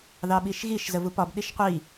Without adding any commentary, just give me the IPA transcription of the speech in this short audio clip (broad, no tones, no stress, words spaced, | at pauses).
ðɑɓiʃɣiʃ zəvupɒb ɗiʃqʷi